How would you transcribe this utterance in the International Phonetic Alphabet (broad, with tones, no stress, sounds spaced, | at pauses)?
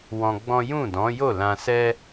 w ɔ̃˧ ɡ͡b ɔ̃˦ j ũ˦˨ d ɔ̃˨˦ j o˦˨ l ã˧ s ɛ˦